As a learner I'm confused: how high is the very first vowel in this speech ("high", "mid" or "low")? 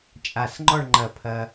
low